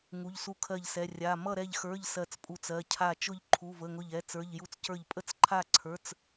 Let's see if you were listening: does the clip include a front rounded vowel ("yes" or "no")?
no